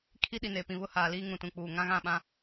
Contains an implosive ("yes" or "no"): yes